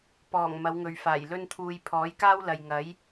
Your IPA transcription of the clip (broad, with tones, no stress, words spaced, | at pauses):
pɔː˨˩ŋ mɐ˨˧wŋɵ˨ɥfaː˨˩j lɵ˥nt̪ʰuː˧j pʰɔː˨˥jkaː˥wlɐ˨j ŋɐ˨˥j